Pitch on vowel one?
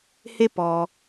high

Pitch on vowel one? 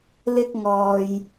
high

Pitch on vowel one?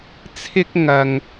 high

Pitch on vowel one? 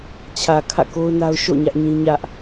low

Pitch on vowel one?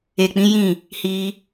low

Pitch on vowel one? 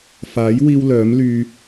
rising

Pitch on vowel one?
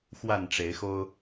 falling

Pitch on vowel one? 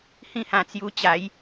falling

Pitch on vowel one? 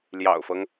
low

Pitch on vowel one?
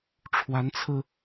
rising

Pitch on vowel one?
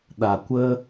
low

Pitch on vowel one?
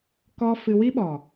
high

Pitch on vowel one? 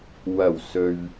low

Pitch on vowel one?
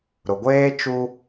low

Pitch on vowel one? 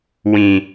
low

